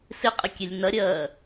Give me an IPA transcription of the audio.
s ɪ qʼ ɪ kʲ e lʲ n ɐ ɾʲ ɜː

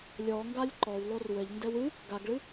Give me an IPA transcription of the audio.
lʲ ɔ ŋ ɡ a lʲ ǃ ɔ w lˠ o r w ɘ ʎ n d ɛ w ɨ | ɡ a ɡ ɭ ɨ

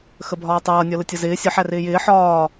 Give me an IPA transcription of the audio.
x ə bʱ ɒː tˤ ʌː nʲ ɔ l ə tʲ ʌ z ɪː sʲ ə ħ æ r ɪː j ɪː ħ ɒː

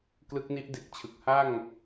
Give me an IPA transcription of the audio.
k l ɯ˦˥ k̚ n i˦˥ ʔ d e˨˩ k̚ t͡ɕʰ ɯ˨˩ k̚ h a˥˩ ŋ

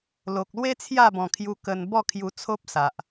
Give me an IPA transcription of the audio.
l o˨ k̚ l w e˦ t͡sʰ j a˥˧ b ɔ̃˨˩ kʰ j u˧ k ə˧ n b ɔ˥˧ kʰ j u˧ t͡sʰ o˦ p̚ s a˨ ʔ

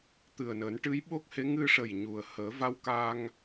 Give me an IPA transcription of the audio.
t̪ ɨ˨˩ ə̯ n əː˨˩˦ n ʈ ɨ˧˥ j ɓ o˦˥ k̚ h e˧˥ ŋ ɨ˧ ʂ ə˨˩ j ɲ u˨˩ ə̯ h əː˨˩˦ v a˧ w k aː˧ ŋ

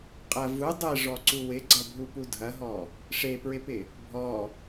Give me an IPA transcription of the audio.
qʼ ɐ v u dˤ e ʐ ɔ ǀ u w ɪ ɡ͡ǀ ɐ bʱ u p u dʱ ɐ ɦ ɔ | ʂ e p ɹ ɪ p ɪ | bʱ ɔ

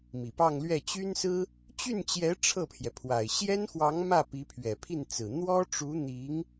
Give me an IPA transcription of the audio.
m i˨˩ p ɑ˥˧ ŋ l ɥ ɛ˥˩ t͡ɕ y˥ n s ɹ̩˥ | t͡ɕ y˥˩ n t͡ɕ j ɛ˧˥ ʈ͡ʂʰ ɤ˥˩ pʰ j ɛ˩ pʰ w a˨˩ ɪ̯ ɕ j ɛ˥ n x w ɑ˧˥ ŋ m ä˥˩ p i˧˥ pʰ ɥ ɛ˨˩ pʰ i˥˩ n t͡s ɹ̩˨˩ n̪ w ɔ˥ ʈ͡ʂ u˧˥ n̪ i˧˥ ŋ

